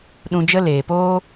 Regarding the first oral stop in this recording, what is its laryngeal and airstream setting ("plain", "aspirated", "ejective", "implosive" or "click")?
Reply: implosive